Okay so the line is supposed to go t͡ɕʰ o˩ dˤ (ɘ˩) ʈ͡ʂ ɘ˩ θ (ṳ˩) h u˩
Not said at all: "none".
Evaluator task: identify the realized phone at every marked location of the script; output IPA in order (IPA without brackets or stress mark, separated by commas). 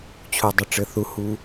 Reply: ɘ˩, u˩